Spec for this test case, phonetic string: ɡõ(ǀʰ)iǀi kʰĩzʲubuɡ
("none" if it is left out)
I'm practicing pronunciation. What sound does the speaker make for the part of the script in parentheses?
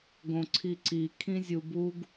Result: ǀʰ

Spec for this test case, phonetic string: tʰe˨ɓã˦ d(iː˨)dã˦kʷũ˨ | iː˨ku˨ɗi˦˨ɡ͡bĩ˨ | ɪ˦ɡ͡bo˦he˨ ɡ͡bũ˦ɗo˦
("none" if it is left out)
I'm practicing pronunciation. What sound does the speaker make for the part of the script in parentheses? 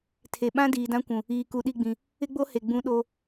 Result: iː˨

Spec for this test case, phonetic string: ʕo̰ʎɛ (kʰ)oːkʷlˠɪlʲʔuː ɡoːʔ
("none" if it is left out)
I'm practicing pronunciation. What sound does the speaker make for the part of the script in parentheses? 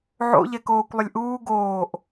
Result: k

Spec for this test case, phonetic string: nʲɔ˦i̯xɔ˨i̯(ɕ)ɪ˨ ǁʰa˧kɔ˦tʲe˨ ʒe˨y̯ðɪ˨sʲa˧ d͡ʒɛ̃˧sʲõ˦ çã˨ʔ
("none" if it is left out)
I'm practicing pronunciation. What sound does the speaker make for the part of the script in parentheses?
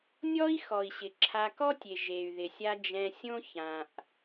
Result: ɕ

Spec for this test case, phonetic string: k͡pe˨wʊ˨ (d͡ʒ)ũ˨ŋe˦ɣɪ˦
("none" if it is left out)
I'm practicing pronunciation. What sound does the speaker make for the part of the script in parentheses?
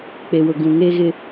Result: ɡ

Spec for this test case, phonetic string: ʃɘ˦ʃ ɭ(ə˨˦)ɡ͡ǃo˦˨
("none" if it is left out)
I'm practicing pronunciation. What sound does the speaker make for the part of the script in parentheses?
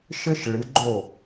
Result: ɨ˨˦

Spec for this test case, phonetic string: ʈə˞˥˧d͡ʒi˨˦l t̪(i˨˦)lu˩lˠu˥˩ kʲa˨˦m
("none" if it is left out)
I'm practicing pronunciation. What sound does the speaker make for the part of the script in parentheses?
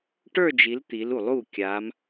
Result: i˨˦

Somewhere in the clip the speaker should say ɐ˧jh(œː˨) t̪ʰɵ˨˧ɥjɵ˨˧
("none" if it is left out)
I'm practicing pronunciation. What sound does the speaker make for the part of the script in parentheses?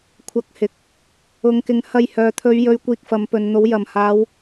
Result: œː˨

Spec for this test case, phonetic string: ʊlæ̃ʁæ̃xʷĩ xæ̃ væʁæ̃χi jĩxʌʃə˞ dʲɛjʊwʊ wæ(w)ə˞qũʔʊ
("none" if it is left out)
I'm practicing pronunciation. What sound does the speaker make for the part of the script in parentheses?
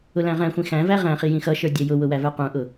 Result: v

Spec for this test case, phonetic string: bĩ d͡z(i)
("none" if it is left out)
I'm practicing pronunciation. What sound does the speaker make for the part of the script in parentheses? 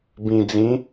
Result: ĩ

